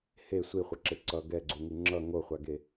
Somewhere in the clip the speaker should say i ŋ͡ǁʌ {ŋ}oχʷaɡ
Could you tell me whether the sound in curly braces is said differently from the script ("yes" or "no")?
no